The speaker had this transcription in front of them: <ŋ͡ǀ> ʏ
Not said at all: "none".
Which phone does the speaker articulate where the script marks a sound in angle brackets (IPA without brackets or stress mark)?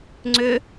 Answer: ŋ͡ǀ